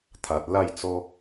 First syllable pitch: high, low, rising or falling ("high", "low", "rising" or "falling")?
low